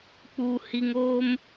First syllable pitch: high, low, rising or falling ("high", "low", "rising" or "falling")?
low